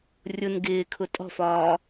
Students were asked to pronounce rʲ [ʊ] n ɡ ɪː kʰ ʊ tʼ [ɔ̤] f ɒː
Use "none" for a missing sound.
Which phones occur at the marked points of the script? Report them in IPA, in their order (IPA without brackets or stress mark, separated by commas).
ʊ, ɔ̤